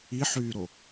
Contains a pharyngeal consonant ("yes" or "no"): yes